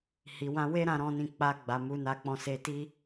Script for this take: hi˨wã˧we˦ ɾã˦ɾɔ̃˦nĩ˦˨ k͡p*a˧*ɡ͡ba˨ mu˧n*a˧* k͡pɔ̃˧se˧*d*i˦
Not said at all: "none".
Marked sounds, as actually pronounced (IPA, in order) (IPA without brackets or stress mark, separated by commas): a˧, a˧, t